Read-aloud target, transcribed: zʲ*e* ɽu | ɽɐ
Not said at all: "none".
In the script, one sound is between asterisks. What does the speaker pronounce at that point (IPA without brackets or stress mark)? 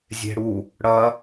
e̤